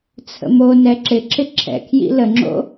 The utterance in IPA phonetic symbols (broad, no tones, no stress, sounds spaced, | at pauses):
t͡sʰ ə̰ m o n ɛ ǁ ɪ ǁ ɪ ǁʰ ɛ̰ kʰ j ḭ l ə ŋ͡ǁ o̰